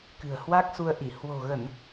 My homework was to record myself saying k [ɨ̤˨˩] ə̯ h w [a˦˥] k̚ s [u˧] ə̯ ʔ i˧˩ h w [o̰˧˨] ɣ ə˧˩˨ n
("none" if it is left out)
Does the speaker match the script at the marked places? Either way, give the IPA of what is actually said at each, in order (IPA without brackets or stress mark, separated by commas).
ɨ̤˨˩, a˦˥, u˧, o̤˨˩